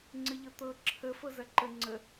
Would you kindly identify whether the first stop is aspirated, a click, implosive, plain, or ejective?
click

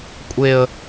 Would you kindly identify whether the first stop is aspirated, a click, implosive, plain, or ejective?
ejective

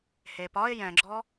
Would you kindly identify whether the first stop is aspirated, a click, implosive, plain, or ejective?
plain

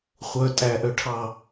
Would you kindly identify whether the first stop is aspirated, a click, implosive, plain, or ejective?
ejective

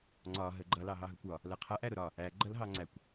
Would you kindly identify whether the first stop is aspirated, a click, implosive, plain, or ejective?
click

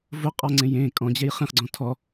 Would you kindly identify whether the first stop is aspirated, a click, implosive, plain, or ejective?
ejective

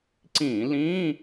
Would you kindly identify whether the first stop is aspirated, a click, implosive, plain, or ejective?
click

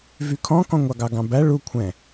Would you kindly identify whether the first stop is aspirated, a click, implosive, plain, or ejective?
aspirated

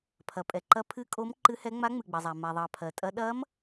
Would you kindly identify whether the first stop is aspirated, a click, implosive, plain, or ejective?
aspirated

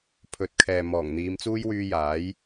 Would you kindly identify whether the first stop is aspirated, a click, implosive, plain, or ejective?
aspirated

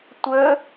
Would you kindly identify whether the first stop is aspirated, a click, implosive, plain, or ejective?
plain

